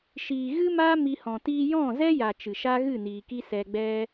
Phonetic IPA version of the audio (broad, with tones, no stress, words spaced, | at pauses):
ʃiː˨ ɣɨ˦maː˦ mi˧hɔ̃˨ tiː˧jɔ̃˦˨zɛ˦ja˨ t͡ʃɨ˨ʃa˦ɣɨ˦˨niː˨ ki˦ sɛ˧ɡ͡bɛ˦